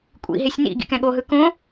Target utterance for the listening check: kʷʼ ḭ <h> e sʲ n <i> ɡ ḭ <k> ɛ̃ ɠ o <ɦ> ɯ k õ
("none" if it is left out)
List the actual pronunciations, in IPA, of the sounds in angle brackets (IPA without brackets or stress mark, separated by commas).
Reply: ɦ, ḭ, k, ɦ